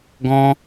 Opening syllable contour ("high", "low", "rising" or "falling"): high